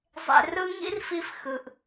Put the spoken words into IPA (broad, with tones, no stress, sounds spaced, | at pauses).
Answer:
zˤ ḛ˧ r ɯ˥ ŋ ḭ˥ r f i˧ f x ɯ˩ ʔ